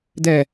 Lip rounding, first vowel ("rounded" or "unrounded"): unrounded